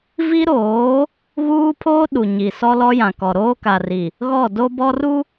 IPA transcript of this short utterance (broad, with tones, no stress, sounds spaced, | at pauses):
v i˦ ɾ oː˨˦ | ɣ uː˦ pʰ oː˦ ɗ u˨ ɲ i˨ s ɔ˦ l ɔ˦ j ã˨ k ɔ˨ ɾ oː˦ k a˨ r i˨ | ɣ ɔ˦˨ d o˦ b ɔ˦ r u˦